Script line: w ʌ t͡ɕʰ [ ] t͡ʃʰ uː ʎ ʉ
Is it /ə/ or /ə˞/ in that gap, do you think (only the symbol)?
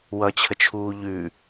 ə